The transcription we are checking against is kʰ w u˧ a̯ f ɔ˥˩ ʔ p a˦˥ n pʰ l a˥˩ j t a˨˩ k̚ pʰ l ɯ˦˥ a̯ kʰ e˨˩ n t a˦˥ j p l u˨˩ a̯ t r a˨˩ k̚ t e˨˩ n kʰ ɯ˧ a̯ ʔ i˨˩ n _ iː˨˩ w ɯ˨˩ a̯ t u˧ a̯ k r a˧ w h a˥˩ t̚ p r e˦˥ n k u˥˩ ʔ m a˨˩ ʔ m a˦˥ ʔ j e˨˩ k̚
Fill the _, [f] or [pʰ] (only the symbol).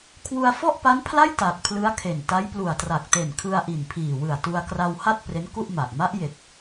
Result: pʰ